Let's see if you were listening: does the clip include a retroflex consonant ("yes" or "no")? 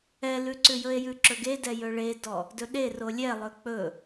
yes